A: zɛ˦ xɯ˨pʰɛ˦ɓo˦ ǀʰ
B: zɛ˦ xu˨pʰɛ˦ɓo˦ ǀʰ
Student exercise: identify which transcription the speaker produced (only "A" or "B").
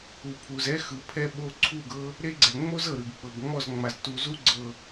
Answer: A